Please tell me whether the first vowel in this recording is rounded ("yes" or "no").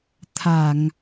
no